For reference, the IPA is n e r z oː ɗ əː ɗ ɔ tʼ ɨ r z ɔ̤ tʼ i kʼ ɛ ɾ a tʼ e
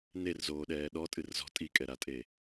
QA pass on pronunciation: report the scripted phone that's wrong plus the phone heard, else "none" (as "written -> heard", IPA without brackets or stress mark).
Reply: əː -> ɛː